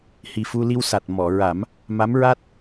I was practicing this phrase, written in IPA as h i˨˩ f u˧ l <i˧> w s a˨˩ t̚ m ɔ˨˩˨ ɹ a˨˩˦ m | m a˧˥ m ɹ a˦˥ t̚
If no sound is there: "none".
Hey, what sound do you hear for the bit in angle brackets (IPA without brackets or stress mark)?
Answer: i˧